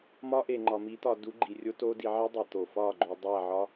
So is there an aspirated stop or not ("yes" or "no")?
no